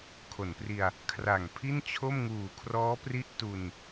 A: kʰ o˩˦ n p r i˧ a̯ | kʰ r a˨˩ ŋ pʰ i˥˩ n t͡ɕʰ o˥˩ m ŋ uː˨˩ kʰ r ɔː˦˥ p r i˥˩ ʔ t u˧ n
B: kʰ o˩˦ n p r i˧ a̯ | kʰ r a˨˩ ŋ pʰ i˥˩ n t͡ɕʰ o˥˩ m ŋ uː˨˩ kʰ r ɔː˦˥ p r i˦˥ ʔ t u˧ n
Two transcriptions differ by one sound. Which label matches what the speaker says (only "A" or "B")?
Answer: B